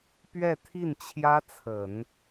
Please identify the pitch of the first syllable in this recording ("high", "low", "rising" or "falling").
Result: falling